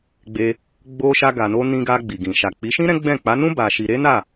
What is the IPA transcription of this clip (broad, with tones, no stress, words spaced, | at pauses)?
ɡ͡be˧ | ɡ͡bo˧ ʃa˧ɡa˨no˧ nĩ˧ɡa˧ ɡ͡bi˨ɡĩ˨ ʃa˨k͡pi˨˦ʃĩ˦ ɾɛ̃˦ɡ͡bɛ̃˦˨ k͡pa˨˦nũ˦ ba˧ʃi˧ ɾe˦na˦˨